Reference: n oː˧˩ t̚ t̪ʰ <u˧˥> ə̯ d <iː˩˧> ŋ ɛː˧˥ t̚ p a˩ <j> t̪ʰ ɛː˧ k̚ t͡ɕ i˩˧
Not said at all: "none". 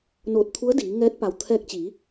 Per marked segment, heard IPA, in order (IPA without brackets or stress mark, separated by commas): u˧˥, iː˩˧, w